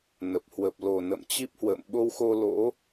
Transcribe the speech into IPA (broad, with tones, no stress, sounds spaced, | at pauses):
n ə˨˩ p̚ h w ə˨˩ p̚ l o˨˩ n ə̰˧˨ m t͡ɕ i˦˥ p̚ h w ə̰ː˧˨ m ɓ o˧ w x o˧ l o̰˧˥